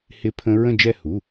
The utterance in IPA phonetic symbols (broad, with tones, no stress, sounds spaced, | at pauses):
h ɪ˦˥ pʰ ə̃˦˥ ɹ ə̃˥˧ d͡ʒ ɛ˥˧ h u˩˧˩